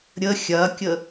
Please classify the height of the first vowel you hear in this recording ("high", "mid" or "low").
mid